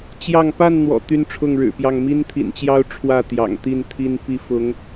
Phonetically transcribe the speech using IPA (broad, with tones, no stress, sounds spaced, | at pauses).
t͡ɕ j ɑ˥˨ ŋ p a˥˨ n n̪ w ɔ̰˨˩ t̪ y˦ n ʈ͡ʂʰ ʊ˥˨ ŋ ɻ ɻ̩˨˩ p j ɑ˥˨ ŋ m i˦ n t̪ʰ ḭ˨˩ n t͡ɕ j ɑ˦ ʊ̯ ʈ͡ʂʰ w ä˥˨ t̪ j ɑ̰˨˩ ŋ t̪ i˥˨ n t̪ʰ i˦ n p i˥˨ f ʊ˨˦ ŋ